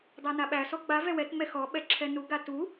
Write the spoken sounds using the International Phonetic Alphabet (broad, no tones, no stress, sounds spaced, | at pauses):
dˤ æ n a ɓ æ s ɔ ɡ͡b a v ɛ w ɛ t ŋ͡m ɛ x ɔ ɓ ɛ ǁʰ ɛ n u ɡ a t u